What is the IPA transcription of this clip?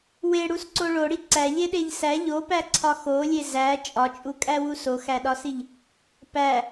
w e ɽ u s ǀ o ɭ o ɽ i ǀ æ ʎ e ɗ e ʎ s æ ʎ o p æ ǀʰ ɒ x o lʲ e z æ t͡ʃʼ ɒ t͡ʃʼ u kʼ æ w u s o x æ ɗ ɒ s i ʎ | p æ

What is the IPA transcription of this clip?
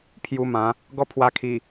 pʰ j u˧ m ã˨˦ | ɡ ɔ˦ pʰ w a˧ kʰ i˨˩

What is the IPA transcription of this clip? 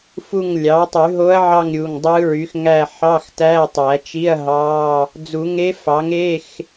f u˦˨ ŋ lʲ ɑ˩˥ tˤ y˨˩˦ ɦ o˧˥ ɐ̯ ʕ ɑ˦˨ ŋ ɾʲ u˩˧˩ ŋ dˤ ɯ˧˥ ɹ y˩˥ x ŋ æ˦˨ ħ ɑ˧˥˧ x t æ˧˥˧ tˤ æ˨˩˦ t͡ʃ i˧˥˧ ɐ̯ ɦ ɑ˧˥˧ | d͡z u˨˩˦ ŋ e˧˥ f ɑ˩˥ ŋ e˧˥˧ x

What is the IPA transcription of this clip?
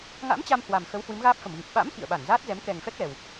ŋ a̰˧˥ m t͡ɕ a˧ m h w a˨˩ m x ə˨˦ w h w ɨ˨˦ m ɣ aː˦˥ p̚ f ə˧˩ m ɣ ɨ˨˩ p̚ ɓ a̰˧˥ m x ḭ˧˨ ə̯ ɓ a˧˩ n z aː˦˥ t̚ z ɛ˨˦ m k ɛ˨˩ ŋ f ɛ˦˥ k̚ l ɛ˨˩ w

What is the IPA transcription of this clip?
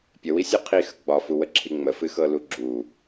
pʲ ə w i sʲ u qʰ i x ə ɡ͡b ɒ f u w ə ǁʰ i ŋ͡m ə f ɨ x ɤ l u ɡ͡ǁ u

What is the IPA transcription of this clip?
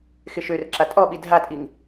x ɪ ʃ ø r ǁ a tʼ ɔ ɓ i dʱ a tʼ i ŋ

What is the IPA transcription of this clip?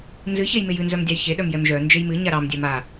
n z ɨ ç e j m e j ɨ n z œ m dʲ ɑ j ç e ɗ œ m j ɛ m ʒ œ n d͡ʒ e j m ɨ ɲ a ɾ ɑ m dʲ ɛ m a

